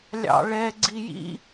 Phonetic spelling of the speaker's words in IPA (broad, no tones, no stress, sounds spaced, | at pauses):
lʲ ɑ̰ ɭ ɛ ɡ͡ǀ i j ḭ